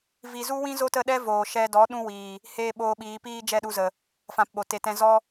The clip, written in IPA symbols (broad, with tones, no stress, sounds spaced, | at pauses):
v i˧ z u˦ w ĩ˦ z o˦ t ə˦˨ ɗ ɛ˦ v oː˨ ʃ ɛ˧ d ɔ˨˦ ɗ ũ˦ w iː˨ | h eː˦ ɓ oː˧ ɓ iː˨˦ p iː˦ d͡ʒ ɛ˦˨ ɗ u˧ z ə˨ | f ã˧ p ɓ o˨ t e˨ t ɛ̃˧ z ɔ˦